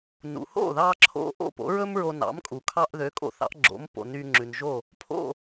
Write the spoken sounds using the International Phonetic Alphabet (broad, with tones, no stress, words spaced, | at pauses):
nṵ˩ho̰˥˩ðɑ˧ǁʰo̰˧ ʔo̰˥˩po̰˩˥ɹɵ˥m ɹo˧nɑ̰˩˥mkʼu˩ kʰɑ˧ʔðø˩˥kʼo̰˧ θɑ̰˩˥ʔɡ͡ǁo̰˩˥mpo̰˩ ny˧ŋ͡ǁʉ˩nʒo˥˩ | pʰo̰˥˩